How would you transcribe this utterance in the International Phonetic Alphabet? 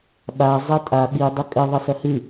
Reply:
ɓ a zˤ ɛ tʼ a ɓ i dˤ ʏ kʼ ɘ ðˤ ɘ s ɐ h ɨ

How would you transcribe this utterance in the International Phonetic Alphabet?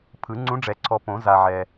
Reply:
pʰ ɯ˨˩˦ ŋ͡ǀ ũ˧˥ ɖ͡ʐ ɛ˨˩˦ ǀʰ ɔ˨ p õ˨˩˦ z a˨ ʕ ɛ˨

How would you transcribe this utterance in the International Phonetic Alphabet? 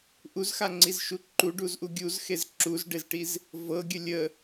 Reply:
ʔ u z x a ŋ͡ǀ i z ʃ u ǃ u ɖ u z ʔ u ɡʲ u z x e z ǁ u z ɖ e z ʈ i z | v ɤ ɡʲ ə lʲ ə

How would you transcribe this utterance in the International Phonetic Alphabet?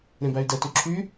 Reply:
ɾ ẽ b æ y̯ d ɛ t y ǁʰ y

